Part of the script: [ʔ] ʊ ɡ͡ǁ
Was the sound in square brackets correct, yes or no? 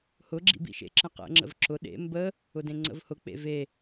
no